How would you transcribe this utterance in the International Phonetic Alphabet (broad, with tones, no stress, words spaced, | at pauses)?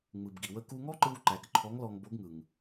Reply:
ŋ͡mɯ˩bɡi˩wə˧ ku˧ŋɔ˥ǃɯ˧w ǃæ˩˧kǃʰɔ˧˥ŋlɔ˧ŋbo˧˥ɡ ŋɯ˩ŋ